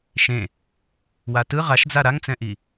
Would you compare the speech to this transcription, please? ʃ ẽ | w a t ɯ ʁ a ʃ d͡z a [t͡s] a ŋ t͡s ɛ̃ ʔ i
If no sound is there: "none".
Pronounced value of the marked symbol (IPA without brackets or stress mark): ɾ